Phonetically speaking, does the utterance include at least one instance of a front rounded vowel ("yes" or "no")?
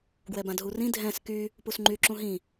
yes